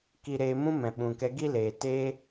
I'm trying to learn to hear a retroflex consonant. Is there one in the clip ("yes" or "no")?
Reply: no